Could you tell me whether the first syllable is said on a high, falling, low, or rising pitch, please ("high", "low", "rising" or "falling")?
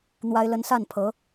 high